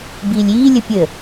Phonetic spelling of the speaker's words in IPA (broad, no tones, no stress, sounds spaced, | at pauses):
b iː lʲ iː lʲ ə pʲ ə